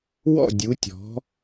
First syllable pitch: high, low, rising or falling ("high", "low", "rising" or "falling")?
falling